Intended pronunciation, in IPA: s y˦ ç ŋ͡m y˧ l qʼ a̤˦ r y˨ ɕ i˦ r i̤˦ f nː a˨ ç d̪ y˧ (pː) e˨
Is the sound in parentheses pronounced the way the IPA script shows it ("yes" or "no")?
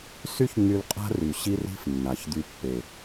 yes